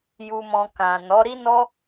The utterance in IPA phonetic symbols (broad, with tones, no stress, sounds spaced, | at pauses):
j u˧ m ɔ̃˧ k ã˨ n ɔ˨˦ ɾ i˦ n ɔ˦